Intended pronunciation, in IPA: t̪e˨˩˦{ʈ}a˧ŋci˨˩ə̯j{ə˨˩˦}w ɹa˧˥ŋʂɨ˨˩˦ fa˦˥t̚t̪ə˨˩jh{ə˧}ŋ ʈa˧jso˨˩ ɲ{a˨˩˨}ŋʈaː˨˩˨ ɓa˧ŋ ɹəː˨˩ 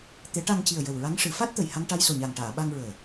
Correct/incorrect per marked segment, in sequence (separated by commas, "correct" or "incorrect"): correct, incorrect, incorrect, incorrect